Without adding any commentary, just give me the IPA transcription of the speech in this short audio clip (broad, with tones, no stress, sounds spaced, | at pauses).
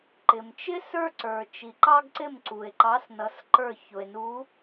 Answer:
ǃ ɪ˨ m t͡ʃ ɪ˥ s ə˞˥ ǀ ə˞˨ t͡ʃ i˨ ǃ ɑ˥ ɡ ǀ ɪ˥˧ m ǀ u˨ e̯ ǃ ɑ˧˥ s n ʌ˧˥ s ǃ ə˞˥˧ ç ʊ˨ e̯ n u˧˥